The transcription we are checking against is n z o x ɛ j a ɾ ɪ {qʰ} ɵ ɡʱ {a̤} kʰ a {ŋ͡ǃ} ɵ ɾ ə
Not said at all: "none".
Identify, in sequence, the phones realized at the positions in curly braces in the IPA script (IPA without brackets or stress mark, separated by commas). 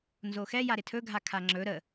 tʰ, a, ŋ͡ǁ